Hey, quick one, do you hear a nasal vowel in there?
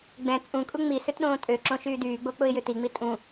yes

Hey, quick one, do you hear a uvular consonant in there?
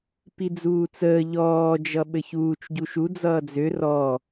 no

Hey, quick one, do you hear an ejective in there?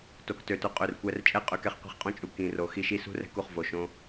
yes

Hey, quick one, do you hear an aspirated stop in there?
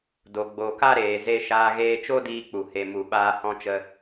no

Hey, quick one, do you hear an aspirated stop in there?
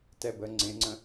no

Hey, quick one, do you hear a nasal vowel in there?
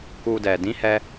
yes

